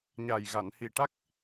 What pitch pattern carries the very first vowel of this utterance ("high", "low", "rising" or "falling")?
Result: low